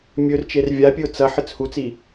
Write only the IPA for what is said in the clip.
mʲ ɵ r t͡ʃ e r vʲ a pʲ ɨ ʊ̯ t͡s ɐ ħ ɨ t͡s h u t͡s i

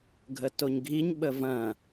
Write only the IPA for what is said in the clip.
ɡʱ ə t o ɲ ɡʱ i ɲ ɓ ə v ɐ̃

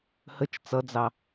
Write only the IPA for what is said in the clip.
h ə t͡ʃ t͡s ʌ d͡z ɑ

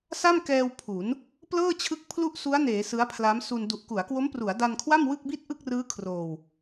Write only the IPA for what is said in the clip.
s a˥˩ m k ɛː˧ w pʰ u˩˦ n | p l ɤː˥˩ t͡ɕʰ ɯ˦˥ k̚ pʰ l u˥˩ ʔ s u˦˥ a̯ n eː˩˦ s ɯ˦˥ a̯ pʰ l a˦˥ m s u˧ n d u˨˩ ʔ k u˩˦ a̯ k w o˦˥ m p r u˩˦ a̯ d a˧ n kʰ w a˥˩ m w ɯ˥˩ k̚ b i˥˩ t̚ ʔ ɯ˥˩ k̚ r ɯː˦˥ kʰ r oː˧ w

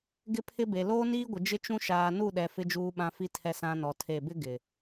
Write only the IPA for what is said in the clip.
ɡ ɪ˦ pʰ ɪ˦ b e˨ l oː˦ n iː˦ ɡʷ ɪ˨ d͡ʒ ɪ˦ t͡ʃ ũ˦ ʃ aː˨ n u˦˨ ɗ ɛ˨ f ɪ˦ d͡ʒ uː˦ ɓ ã˦ f i˦ tʰ ɛ˦ s ã˦ n ɔ˨ tʰ e˦˨ b ɪ˦ ɡ ɪ˨

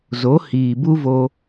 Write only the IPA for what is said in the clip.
z o˨˦ h iː˨ b u˦ v o˧

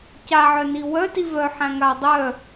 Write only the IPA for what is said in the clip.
c a ʕ œ n i w œ t i v œ ħ æ̃ ŋ a dˤ œ

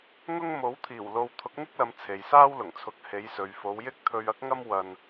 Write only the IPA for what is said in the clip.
ŋ ʊ˥ ŋ m o˨˥ w t̪ʰ iː˨˩ w l o˧ w t̪ʰ ʊ˨˥ k̚ ŋ ɪ˥ k̚ l ɐ˨˧ m t͡sʰ e˨ j s aː˥ w l ʊ˨˩ ŋ t͡sʰ ʊ˨˥ k̚ h e˨˧ j s ɵ˨ ɥ f o˨˧ w j ɪ˥ k̚ t̪ʰ ɵ˧ ɥ ɐ˥ k̚ ŋ ɐ˥ m w ɐ˧ n

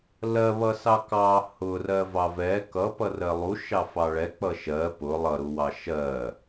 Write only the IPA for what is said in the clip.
l ɜ β ʌ s ɑ k ɑ h ʊ r ɜ v ɑ v ɛ k ʌ p ʌ r ɜ lˠ u ʃ ɑ f ɑ ɭ ɛ k͡p ʌ ʃ ɜ p ʊ lˠ ʌ ɾ u w ɑ ʃ ɜ

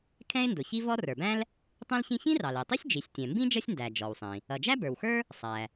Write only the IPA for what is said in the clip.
kʰ ɛ̃˥ ɪ̯ n d ʊ˩ ç i˥ v ɔ˥ r ə˞˩ b æ̃˥ l | tˤ ĩ˥ l ç ĩ˥ ç ĩ˥ r ɑ˩ l i˩ tˤ i˥ sʲ d͡ʒ i˩ sʲ tʲ ɛ̃˩ m b ĩ˥ d͡ʒ ʌ˥ sʲ n d æ˩ d͡ʒ ɔ˩ w sˤ ĩ˩ | ʌ˩ d͡ʒ æ˥ b ə˞˩ w x ə˞˥ | sˤ æ˩

